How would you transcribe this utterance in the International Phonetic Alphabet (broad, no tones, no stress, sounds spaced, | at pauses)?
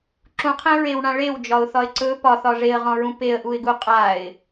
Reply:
ǁ ũ qʰ ẽ ɹ e w ɳ ã ɭ e w d͡ʒ ɒ ʊ̯ θ ɒ ɪ̯ ǀ ɵ p ɒ θ ɒ ʐ e ə̯ ʁ ɔ̃ ɹ ũ p e ə̯ ʔ u ɪ̯ ɡ u qʼ a ɪ̯